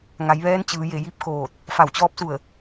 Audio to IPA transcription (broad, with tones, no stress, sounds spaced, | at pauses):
ŋ a˩˧ j ʋ ɛː˧˥ n t͡ɕ ɯː˩˧ j e˧˩ j i˧˥ p̚ k oː˧˩ t̚ | f a˧˩ w t͡ɕ ɔː˧˥ p̚ s u˧˩ ə̯